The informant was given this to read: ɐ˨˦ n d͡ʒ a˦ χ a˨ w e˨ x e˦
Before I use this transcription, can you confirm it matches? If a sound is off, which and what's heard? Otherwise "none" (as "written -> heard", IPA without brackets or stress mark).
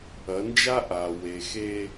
χ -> ʔ